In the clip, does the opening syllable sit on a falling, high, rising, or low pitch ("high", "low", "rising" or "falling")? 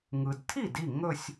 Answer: low